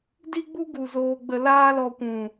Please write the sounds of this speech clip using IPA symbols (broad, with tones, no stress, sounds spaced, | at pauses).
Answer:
d i˦ ɡ͡b u˦ ɡ u˨ z oː˧ ɡ͡b ə˧ l aː˦ l ɔ˧ kʷ ũ˨